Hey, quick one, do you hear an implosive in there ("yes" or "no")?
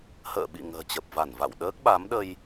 yes